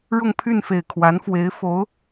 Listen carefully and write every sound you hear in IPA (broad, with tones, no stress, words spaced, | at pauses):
ɻʊ˥˧ŋpʰy˥˩nfe˨˩ɪ̯ kʰwa˧˥nfwe˧˥ɪ̯ fo˧˥ʊ̯